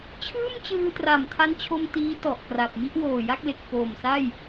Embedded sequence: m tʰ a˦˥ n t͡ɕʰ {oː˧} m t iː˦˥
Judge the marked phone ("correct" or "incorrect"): incorrect